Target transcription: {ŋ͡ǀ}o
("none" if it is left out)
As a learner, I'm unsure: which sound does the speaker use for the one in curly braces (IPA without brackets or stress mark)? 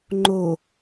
ŋ͡ǃ